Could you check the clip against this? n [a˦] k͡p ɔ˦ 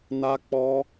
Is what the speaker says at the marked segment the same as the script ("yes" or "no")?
yes